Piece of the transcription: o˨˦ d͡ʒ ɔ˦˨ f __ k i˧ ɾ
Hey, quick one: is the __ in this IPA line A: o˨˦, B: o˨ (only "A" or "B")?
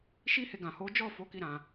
A